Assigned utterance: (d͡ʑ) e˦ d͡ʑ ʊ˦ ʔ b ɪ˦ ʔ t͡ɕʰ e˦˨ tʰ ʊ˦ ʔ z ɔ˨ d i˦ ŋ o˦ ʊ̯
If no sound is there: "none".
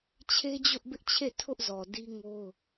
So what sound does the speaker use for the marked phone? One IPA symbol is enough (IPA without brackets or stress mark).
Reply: t͡ɕʰ